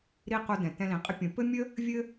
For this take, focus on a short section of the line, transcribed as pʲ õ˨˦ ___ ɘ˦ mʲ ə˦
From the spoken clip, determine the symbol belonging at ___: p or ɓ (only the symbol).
p